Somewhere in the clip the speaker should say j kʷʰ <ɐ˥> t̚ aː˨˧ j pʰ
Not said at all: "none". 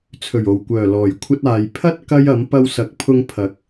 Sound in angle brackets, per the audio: ɐ˥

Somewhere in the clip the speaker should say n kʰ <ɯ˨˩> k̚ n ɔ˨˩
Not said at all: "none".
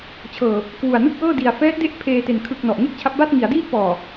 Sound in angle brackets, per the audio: ɯ˨˩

